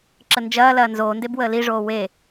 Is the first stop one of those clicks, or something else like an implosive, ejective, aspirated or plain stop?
click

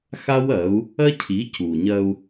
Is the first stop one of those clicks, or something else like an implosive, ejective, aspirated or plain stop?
aspirated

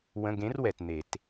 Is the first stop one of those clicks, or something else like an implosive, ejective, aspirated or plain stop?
plain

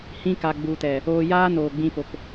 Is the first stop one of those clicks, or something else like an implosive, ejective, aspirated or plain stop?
plain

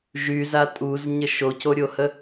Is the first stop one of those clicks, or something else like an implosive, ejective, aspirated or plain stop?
ejective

